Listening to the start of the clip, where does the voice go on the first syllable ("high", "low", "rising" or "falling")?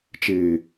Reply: low